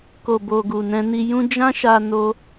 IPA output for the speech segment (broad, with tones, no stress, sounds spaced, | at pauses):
k o˨ b o˨ ɡ u˨ n ɛ̃˧ n i˧ j ũ˦ d͡ʒ ã˦ ʃ a˧ n o˦